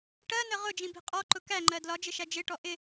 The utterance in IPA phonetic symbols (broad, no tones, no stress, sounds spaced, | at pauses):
ʈ ɜ n ə ʁ ʊ d͡ʒ ĩ b i̤ qʼ ɔ ǃ ʊ k æ ŋ͡ǃ ɜ d l ɒ d͡ʒ ɪ ʃ æ d͡ʒ ɪ ʈ ɔ ʔ ɪ